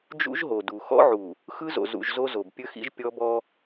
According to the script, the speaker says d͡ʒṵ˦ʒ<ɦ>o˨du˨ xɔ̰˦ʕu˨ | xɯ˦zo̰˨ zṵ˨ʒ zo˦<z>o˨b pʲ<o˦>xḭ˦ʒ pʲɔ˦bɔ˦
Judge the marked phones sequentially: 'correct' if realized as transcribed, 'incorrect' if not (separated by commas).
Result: correct, correct, incorrect